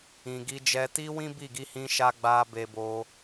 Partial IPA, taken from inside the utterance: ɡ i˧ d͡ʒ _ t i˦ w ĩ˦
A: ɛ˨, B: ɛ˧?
B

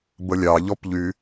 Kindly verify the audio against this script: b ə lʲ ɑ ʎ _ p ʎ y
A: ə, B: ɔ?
B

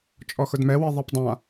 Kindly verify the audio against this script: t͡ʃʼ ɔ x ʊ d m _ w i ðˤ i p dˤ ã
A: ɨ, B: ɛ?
B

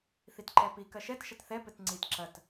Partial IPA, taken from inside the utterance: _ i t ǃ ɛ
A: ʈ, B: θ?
B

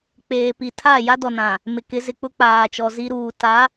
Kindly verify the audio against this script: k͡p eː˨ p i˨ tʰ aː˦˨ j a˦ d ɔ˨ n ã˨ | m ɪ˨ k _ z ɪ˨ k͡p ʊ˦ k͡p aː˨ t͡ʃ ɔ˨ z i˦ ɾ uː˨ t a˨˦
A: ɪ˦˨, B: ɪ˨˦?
B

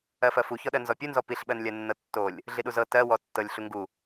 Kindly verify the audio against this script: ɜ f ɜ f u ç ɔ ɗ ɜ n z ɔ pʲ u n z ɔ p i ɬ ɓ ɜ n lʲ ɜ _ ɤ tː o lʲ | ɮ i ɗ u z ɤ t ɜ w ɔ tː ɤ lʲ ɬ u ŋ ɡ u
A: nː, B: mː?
A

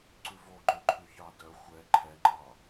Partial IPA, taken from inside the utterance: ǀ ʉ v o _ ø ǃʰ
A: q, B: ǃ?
B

